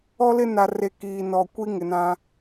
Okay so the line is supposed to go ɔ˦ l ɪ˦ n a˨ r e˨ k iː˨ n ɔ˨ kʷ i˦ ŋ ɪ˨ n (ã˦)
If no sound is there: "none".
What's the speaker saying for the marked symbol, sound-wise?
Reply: ã˦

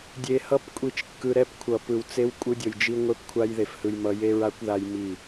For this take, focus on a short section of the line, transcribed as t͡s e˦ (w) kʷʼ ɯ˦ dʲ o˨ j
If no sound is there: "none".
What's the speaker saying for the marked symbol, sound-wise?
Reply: w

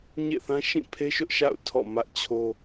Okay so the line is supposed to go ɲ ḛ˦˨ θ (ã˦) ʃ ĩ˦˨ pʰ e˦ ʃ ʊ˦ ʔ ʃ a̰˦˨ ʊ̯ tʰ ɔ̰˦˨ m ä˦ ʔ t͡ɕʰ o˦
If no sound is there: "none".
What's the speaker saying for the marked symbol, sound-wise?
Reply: ã˦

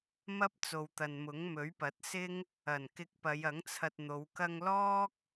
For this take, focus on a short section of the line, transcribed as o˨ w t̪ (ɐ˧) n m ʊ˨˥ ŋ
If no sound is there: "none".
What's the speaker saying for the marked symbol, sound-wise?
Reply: ɐ˨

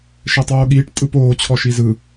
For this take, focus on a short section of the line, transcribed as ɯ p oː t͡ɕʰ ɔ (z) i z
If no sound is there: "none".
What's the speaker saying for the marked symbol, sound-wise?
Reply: ʃ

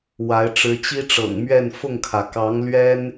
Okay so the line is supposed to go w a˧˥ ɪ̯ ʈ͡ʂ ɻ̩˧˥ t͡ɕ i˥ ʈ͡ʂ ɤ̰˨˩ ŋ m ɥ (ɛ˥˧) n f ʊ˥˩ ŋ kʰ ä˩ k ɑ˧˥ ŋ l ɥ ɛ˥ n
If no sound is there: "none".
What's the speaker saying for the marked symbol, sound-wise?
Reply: ɛ˥˧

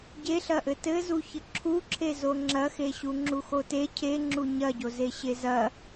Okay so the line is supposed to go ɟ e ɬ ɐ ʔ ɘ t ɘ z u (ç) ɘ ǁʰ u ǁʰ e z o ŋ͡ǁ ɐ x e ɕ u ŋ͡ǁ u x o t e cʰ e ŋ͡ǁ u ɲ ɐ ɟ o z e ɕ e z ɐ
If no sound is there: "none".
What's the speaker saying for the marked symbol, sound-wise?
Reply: ç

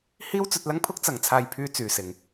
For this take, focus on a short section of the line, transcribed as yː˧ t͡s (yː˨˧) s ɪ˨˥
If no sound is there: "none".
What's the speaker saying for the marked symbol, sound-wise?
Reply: yː˨˧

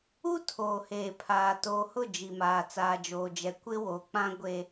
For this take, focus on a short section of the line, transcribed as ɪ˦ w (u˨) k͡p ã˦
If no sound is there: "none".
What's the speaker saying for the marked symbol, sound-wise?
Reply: o˨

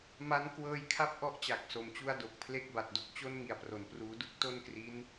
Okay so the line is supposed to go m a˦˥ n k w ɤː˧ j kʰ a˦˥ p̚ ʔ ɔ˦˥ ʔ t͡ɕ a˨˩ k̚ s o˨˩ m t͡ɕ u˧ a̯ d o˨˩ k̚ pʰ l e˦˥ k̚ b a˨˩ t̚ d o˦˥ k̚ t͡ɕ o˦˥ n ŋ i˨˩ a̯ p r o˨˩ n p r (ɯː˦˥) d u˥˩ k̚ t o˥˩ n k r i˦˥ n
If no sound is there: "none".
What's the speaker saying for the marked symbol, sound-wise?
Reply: uː˦˥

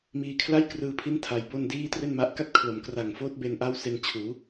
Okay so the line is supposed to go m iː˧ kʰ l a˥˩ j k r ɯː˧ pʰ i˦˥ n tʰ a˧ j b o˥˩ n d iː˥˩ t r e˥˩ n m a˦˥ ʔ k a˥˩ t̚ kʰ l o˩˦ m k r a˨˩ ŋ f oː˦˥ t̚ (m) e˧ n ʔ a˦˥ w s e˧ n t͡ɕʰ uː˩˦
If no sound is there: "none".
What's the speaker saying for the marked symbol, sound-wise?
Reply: b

